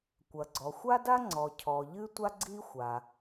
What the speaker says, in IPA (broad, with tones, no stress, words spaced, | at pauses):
kʷɐ˩ ɡ͡ǀɔ˩xʷa˥da˥ ŋ͡ǀɔ˩cʰɔ˩ ʎɨ˥tʷa˥ ɡ͡ǀi˥xʷa˩